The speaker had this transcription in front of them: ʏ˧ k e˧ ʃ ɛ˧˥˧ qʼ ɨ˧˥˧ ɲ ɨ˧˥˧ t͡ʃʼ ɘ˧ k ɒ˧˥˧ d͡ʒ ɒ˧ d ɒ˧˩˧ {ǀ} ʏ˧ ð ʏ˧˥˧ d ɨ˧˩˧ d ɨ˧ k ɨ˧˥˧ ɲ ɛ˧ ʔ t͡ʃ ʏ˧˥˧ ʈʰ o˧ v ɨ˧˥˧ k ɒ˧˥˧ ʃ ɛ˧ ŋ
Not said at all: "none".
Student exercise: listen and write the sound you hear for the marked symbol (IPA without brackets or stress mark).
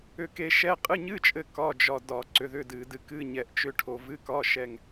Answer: ǀ